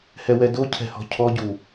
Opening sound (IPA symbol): h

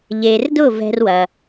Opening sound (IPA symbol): ʎ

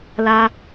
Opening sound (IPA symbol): l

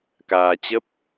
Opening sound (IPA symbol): k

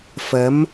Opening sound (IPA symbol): f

